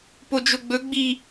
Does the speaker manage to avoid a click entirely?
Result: yes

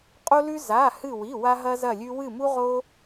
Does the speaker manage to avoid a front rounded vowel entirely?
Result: yes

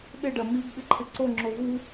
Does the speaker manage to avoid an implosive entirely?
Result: no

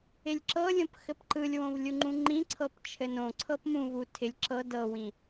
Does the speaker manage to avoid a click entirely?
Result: no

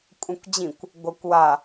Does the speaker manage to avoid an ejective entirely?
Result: no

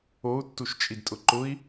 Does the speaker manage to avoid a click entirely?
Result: no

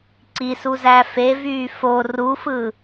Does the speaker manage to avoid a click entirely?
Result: no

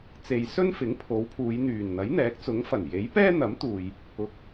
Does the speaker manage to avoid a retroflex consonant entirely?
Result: yes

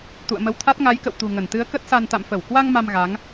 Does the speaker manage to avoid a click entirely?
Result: yes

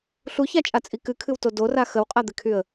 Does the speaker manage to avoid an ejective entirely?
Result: no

